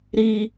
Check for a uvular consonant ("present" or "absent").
absent